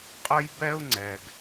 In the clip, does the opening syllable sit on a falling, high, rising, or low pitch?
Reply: high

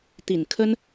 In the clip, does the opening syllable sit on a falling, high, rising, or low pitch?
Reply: low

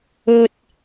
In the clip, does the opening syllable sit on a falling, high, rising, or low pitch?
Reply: high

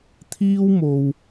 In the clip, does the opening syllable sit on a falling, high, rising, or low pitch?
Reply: high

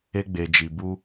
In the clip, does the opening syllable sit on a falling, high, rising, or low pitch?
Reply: high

